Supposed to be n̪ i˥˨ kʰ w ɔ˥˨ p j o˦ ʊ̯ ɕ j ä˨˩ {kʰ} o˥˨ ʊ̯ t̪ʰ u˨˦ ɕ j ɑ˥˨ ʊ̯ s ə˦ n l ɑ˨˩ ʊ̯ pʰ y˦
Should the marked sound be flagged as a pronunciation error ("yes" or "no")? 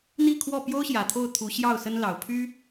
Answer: yes